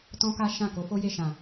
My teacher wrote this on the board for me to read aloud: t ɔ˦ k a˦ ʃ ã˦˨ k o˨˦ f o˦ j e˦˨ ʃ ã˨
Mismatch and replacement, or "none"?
ɔ˦ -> ɔ̃˦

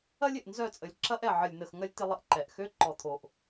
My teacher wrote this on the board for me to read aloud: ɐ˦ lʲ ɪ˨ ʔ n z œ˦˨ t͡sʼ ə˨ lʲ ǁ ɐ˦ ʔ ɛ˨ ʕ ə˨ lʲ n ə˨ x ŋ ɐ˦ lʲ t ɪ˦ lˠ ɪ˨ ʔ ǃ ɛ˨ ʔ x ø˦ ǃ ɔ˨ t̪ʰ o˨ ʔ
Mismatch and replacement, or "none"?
none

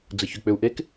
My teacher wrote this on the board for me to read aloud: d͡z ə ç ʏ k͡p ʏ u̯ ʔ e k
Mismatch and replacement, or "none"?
none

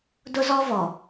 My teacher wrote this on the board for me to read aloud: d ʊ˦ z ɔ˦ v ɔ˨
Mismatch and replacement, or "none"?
none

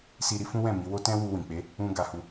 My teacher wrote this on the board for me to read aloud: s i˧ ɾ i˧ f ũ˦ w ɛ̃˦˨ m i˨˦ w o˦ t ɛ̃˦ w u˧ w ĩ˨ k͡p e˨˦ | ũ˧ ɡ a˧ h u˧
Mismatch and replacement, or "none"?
none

